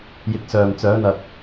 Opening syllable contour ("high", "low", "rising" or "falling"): low